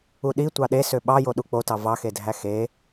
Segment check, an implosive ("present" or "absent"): present